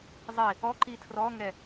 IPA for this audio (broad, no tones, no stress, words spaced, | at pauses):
zˤi | ɔǃi tʰrɔŋɛ